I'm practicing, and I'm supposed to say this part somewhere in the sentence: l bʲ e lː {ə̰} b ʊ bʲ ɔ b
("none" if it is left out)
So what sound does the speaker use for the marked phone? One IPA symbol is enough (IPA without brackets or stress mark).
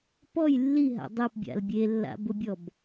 a̰